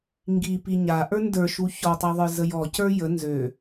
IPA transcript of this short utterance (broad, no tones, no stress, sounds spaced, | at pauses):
ŋ ɡ i p i ɲ a ʔ ə˞ n d ə˞ ʃ u ç ɔ tˤ a ðˤ ə˞ z ə j ɔ c ə˞ j ə n z ø